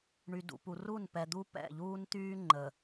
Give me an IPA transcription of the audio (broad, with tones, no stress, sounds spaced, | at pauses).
ɳ y˨ d ṵ˨ p u˨ r u˦˨ n p ɛ˨ d̪ u˦ p ɛ̰˦˨ ʎ uː˦ n t̪ yː˦ ŋ͡ǃ ə˨